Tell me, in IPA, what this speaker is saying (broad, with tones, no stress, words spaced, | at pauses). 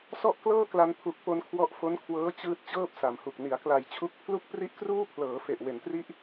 sɔ˥˩ʔklɤː˥˩kla˧n pʰu˨˩k̚po˧n kʰwɔ˦˥ʔfo˦˥nkʰwɤː˦˥ t͡ɕɯː˦˥t̚ t͡ɕɤː˥˩p̚sa˩˦mhu˨˩k̚ ni˩˦a̯kla˨˩jt͡ɕʰu˦˥k̚ pʰlu˥˩k̚pri˥˩ʔkruː˥˩ pʰlɤː˩˦ fe˨˩ʔ we˩˦ntri˦˥ʔ